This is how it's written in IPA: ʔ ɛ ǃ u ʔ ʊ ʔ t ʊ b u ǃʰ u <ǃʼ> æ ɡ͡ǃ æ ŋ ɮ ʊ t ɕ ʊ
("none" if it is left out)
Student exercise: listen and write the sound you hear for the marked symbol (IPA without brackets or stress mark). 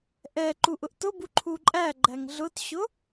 ǃʼ